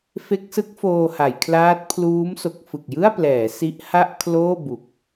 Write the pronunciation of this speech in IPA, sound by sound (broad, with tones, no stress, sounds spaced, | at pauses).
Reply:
f e˦˥ k̚ s ɯ˦˥ k̚ f oː˧ h a˩˦ j kʰ l aː˦˥ t̚ pʰ l uː˦˥ m s o˨˩ k̚ f ɯ˨˩ k̚ j ɯ˥˩ a̯ p l ɛː˩˦ s i˦˥ ʔ h a˥˩ ʔ kʰ l oː˥˩ b u˨˩ k̚